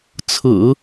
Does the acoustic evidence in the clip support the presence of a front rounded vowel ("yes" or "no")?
no